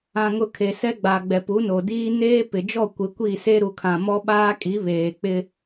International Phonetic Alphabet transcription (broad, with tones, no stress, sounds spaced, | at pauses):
ã˨ ŋ ʊ˨ kʰ e˨ s ɛ˦ ɡ͡b a˨ ɡ͡b ɛ˨ p u˨˦ n o˨ d iː˦ n eː˦ p ɪ˨ d͡ʒ ɔ˦˨ kʷ ɪ˨˦ kʷ i˦˨ s e˦ ɾ u˨ kʰ ã˨ m ɔ˦ ɓ aː˦ kʼ i˨˦ β eː˨ k͡p ɪ˦